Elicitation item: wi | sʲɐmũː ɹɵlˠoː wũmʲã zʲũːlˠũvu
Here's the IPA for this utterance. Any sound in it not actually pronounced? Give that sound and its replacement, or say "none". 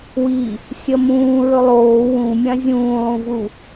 none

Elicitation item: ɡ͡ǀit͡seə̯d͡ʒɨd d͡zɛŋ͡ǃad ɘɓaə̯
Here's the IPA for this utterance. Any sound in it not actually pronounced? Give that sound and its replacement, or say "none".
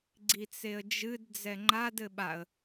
none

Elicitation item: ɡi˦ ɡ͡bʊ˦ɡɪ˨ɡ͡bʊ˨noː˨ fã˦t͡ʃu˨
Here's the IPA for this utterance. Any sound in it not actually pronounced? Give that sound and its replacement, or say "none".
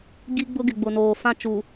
none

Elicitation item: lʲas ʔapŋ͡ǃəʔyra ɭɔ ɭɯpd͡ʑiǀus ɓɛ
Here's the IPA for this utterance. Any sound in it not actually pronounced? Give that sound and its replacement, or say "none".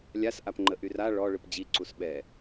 none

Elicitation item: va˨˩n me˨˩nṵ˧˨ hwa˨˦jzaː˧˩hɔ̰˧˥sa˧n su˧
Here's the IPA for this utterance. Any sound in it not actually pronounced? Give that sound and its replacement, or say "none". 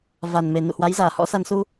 none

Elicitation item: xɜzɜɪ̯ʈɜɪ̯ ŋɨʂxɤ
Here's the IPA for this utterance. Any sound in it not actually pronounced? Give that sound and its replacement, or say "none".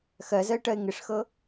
ɨ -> ɪ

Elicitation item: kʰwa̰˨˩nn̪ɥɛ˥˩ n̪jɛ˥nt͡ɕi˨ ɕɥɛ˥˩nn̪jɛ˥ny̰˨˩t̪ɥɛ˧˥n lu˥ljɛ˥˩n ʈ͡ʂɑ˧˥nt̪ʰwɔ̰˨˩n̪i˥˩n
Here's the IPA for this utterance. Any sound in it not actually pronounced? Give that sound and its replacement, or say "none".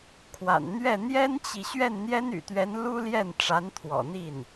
ɑ˧˥ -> a˧˥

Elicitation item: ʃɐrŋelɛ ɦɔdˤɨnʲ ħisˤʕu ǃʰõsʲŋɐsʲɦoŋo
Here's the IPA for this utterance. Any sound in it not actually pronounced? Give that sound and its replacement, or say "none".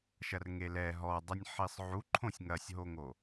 none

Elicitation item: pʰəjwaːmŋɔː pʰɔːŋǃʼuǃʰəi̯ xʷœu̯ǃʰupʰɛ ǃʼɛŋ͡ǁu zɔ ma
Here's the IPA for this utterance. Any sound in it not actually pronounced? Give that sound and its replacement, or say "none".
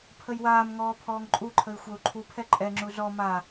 none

